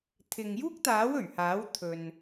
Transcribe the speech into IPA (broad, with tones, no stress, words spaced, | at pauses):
t̪ʰɪ˨ŋjuː˥k̚t̪aː˨˥w ɵ˨˩ɥhaː˨˥w t̪ʰɵ˨n